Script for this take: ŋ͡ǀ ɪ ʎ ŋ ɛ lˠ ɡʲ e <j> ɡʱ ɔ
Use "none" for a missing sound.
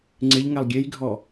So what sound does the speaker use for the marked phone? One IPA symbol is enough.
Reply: j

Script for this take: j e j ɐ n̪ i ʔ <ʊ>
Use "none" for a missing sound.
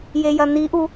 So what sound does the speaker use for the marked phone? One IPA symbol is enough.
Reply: u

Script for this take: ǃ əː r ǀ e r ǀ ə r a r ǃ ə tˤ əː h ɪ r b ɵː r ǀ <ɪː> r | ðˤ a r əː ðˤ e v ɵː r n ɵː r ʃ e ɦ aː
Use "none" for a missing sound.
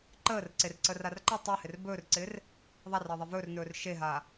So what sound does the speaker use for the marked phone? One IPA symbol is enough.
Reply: ɪː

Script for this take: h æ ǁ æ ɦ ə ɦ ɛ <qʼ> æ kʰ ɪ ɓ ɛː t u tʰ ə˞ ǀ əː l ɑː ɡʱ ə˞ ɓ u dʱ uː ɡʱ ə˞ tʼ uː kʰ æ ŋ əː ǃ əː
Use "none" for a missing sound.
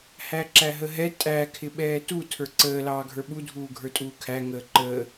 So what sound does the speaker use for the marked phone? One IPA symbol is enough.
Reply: tʼ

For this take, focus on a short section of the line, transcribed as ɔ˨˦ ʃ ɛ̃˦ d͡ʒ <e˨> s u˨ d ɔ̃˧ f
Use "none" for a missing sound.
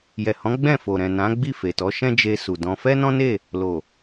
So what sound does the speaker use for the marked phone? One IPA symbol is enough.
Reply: e˧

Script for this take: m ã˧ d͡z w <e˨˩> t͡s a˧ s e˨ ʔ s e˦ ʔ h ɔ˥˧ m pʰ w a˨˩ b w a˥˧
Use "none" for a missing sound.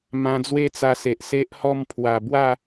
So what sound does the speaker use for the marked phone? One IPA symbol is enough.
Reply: e˦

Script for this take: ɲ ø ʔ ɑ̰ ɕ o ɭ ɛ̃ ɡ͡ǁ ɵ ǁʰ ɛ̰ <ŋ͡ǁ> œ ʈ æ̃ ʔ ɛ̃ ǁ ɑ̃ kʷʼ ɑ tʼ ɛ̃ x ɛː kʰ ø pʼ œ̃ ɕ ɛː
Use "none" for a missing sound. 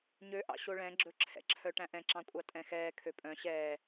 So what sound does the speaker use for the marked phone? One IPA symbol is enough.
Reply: ǁʰ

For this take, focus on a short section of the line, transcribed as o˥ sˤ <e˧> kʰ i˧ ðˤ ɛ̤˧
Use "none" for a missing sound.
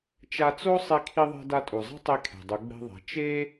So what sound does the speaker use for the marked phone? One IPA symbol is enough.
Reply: e˧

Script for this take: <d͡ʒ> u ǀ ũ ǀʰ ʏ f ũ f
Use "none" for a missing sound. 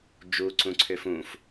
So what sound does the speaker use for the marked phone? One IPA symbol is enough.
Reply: d͡ʒ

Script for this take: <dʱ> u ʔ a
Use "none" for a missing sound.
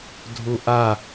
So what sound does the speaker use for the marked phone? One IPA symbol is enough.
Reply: dʱ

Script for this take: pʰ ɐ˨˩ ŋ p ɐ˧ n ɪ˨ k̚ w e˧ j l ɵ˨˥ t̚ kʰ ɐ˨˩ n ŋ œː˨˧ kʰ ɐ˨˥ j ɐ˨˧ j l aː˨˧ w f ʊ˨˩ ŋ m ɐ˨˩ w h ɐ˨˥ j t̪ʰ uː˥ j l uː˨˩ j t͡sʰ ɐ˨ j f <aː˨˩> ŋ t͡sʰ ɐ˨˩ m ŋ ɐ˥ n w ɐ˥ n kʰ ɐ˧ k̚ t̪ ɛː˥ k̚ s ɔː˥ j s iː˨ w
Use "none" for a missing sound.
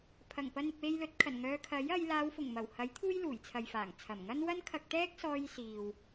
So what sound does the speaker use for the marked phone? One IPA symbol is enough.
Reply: aː˨˩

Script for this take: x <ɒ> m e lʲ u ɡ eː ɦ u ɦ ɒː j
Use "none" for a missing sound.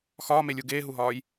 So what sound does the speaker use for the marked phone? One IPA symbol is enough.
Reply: ɒː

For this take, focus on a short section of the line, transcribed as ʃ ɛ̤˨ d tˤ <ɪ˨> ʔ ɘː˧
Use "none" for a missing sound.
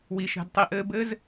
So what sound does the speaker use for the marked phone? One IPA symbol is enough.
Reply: i˨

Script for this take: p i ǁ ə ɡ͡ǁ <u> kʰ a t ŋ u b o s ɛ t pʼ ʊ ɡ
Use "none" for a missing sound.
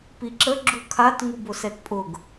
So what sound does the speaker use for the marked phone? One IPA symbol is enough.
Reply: u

